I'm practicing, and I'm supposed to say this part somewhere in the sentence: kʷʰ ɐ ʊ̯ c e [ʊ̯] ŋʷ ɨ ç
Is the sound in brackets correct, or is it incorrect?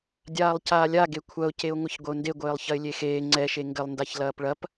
correct